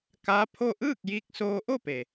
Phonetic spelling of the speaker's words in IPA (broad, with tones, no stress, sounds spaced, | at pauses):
k a˧˥ pʰ o˥˨ ʔ ɯː˥˨ k̚ j iː˧ k̚ s oː˧ ʔ o˥˨ p e˩